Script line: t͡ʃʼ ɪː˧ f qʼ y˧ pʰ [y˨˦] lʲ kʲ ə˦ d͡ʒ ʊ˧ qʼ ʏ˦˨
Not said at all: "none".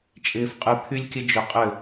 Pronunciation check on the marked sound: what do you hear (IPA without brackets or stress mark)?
y˦